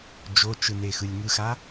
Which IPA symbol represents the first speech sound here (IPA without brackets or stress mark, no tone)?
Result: d͡ʒ